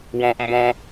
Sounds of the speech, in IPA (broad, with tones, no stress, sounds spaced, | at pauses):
w ɔ̃˥ ʔ m b ɔ̃˥